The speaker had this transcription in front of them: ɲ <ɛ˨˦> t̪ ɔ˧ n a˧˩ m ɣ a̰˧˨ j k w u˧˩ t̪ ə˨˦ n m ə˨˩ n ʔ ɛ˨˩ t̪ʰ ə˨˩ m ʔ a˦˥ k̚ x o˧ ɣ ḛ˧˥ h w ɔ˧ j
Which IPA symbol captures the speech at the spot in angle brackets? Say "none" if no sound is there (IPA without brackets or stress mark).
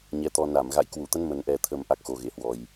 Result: ɛ˨˦